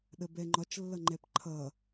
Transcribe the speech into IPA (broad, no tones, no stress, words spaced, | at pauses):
ɗəbɛŋ͡ǃɒt͡ʃ lːʌŋ͡ǃɛpǃʰʌ